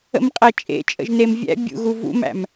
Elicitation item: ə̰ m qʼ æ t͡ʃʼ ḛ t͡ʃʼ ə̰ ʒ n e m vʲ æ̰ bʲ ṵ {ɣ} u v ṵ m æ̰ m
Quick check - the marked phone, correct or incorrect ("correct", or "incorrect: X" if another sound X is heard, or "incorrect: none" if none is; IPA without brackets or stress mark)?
correct